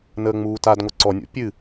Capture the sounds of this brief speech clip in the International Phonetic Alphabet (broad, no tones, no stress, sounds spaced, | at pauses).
n əː ŋ͡m uː t a d ŋʷ ɤ ǀ ɔ nʲ o̰ pʲ ɨ